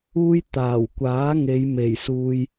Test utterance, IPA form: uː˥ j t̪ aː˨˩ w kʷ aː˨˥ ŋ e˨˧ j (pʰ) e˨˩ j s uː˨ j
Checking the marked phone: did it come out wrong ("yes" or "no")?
yes